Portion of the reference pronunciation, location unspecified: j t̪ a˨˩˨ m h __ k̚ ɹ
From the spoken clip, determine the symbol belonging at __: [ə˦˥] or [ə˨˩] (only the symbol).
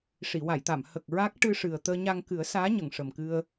ə˨˩